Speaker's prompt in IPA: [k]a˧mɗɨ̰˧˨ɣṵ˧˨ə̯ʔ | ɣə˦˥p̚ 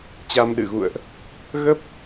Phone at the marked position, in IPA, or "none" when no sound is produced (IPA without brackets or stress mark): t͡ɕ